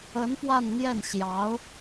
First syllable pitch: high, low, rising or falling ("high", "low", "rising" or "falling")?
rising